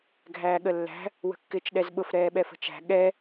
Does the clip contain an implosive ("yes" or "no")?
yes